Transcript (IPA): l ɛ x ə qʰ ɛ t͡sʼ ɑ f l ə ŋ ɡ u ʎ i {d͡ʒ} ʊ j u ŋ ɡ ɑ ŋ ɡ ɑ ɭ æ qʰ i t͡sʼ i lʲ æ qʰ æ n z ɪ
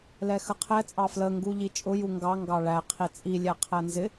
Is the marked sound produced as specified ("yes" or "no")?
no